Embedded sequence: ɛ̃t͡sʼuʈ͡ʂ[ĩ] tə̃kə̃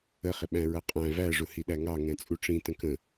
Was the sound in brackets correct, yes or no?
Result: yes